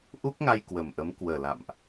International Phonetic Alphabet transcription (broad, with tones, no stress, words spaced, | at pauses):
ʔu˦˥k̚ŋa˧j kwə˨˩mʔə˨˦m kwəː˨˩la̰˧˨mʔ